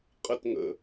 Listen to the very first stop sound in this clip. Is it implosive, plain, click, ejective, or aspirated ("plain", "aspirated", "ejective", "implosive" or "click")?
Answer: ejective